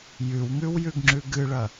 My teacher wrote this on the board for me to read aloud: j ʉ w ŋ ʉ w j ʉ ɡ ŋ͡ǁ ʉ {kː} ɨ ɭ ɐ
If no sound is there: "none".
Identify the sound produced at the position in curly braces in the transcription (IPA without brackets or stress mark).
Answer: ɡ